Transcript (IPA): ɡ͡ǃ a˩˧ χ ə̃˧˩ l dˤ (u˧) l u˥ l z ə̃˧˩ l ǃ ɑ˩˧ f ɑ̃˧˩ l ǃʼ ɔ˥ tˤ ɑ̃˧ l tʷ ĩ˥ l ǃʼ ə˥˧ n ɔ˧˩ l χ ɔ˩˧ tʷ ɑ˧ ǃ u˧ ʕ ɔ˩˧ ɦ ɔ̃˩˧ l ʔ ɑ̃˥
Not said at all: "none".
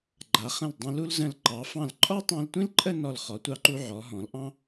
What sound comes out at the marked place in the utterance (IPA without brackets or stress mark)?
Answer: ũ˧